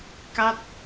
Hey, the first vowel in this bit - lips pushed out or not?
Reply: no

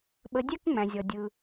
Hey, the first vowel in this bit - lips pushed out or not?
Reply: no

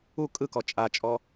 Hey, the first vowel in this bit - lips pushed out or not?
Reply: yes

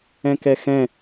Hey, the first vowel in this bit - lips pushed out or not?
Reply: no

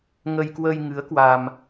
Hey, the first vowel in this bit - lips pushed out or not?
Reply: no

